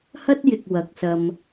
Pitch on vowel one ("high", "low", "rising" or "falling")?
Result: high